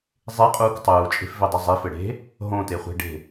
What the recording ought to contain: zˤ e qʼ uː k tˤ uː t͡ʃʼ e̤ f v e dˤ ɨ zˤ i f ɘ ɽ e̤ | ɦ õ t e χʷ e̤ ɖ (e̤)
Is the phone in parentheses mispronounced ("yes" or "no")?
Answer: no